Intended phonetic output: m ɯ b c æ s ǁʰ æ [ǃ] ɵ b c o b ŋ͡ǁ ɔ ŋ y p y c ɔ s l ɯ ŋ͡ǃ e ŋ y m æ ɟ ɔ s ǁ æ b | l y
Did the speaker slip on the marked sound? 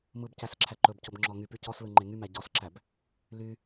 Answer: no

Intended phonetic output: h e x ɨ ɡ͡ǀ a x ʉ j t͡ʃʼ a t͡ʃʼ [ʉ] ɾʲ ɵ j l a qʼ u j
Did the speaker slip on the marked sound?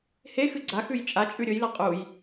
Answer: no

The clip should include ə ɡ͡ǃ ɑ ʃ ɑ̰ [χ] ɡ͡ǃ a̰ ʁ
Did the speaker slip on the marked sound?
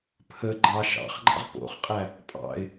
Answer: no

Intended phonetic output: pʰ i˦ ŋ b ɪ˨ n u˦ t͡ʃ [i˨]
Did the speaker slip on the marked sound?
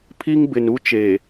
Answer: yes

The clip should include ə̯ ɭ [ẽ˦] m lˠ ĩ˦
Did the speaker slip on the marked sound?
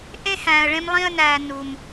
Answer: no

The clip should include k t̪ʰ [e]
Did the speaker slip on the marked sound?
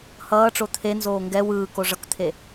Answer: no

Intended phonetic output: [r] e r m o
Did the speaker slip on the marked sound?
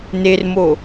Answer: yes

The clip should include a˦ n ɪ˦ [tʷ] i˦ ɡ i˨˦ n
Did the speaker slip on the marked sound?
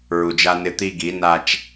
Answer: yes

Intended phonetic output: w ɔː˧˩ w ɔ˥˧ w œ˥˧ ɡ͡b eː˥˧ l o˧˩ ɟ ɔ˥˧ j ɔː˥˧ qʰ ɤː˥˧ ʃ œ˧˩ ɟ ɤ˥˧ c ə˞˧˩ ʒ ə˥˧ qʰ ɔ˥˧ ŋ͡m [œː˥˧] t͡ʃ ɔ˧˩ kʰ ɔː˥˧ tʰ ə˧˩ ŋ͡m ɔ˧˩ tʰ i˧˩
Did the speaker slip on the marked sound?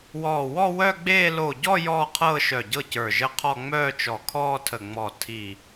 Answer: no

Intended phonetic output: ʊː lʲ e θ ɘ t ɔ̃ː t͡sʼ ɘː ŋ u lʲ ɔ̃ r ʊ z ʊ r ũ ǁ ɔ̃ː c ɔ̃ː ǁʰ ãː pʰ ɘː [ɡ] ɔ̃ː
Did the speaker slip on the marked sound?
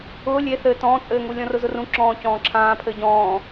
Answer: yes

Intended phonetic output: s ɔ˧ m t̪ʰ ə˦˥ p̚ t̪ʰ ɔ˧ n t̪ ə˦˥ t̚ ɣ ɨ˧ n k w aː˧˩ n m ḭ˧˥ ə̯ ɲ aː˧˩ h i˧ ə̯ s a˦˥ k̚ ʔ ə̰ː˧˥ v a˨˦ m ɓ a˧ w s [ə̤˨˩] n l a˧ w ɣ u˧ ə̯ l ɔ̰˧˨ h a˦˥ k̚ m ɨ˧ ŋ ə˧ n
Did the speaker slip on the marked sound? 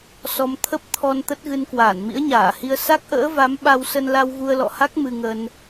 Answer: yes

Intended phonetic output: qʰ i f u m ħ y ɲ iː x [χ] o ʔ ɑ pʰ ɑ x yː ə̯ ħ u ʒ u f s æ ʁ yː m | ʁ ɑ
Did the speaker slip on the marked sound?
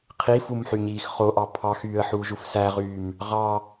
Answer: no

